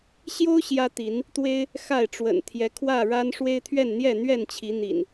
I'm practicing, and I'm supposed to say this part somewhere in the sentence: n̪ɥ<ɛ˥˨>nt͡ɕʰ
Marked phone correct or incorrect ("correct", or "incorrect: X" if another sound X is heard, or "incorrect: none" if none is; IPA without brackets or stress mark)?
correct